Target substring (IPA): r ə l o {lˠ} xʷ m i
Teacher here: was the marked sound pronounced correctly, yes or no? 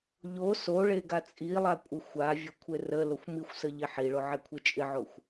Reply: no